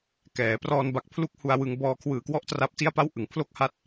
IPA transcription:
k ɛː˩˦ p r ɔː˧ n b a˨˩ k̚ pʰ l u˦˥ k̚ h u˧ a̯ w ɯ˧ ŋ b ɔː˧ kʰ w ɯː˨˩ k w ɔ˥˩ ʔ t r a˦˥ p̚ t i˥˩ a̯ p a˥˩ w ʔ ɯ˩˦ ŋ pʰ l o˥˩ k̚ h a˦˥ t̚

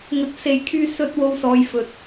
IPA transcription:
ŋ ɵ˧ t̚ s e˨ j kʰ yː˧ s ɵ˥ t̚ w o˧ w s ɔː˨ j f ɵ˨˥ t̚

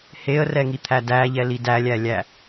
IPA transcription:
h e ə̯ r ɛ ŋ i t̪ʰ æ d æ ʎ ɛ l i d æ lʲ æ lʲ æ

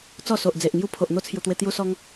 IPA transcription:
t͡s ɔ˥˧ s o˨ ʔ d͡z e˨ ʔ ŋ j u˦ pʰ o˨ ʔ n̪ o˥˧ t͡sʰ j u˨˩ t̪ w e˧ t̪ j u˧ s ɔ˧ ŋ

